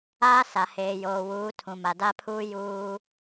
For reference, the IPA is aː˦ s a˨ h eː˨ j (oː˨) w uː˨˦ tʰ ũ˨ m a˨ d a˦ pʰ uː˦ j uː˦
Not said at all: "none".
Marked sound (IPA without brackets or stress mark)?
oː˨